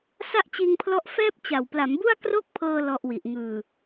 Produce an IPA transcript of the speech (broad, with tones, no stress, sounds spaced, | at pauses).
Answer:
s a˥˩ ʔ t͡ɕ iː˧ ŋ pʰ l ɔ˦˥ ʔ f ɛː˥˩ p̚ t͡ɕ a˨˩ w p l a˩˦ m b u˥˩ a̯ k r o˥˩ k̚ pʰ ɤː˧ l ɔ˥˩ ʔ w i˨˩ ʔ ŋ ɯː˨˩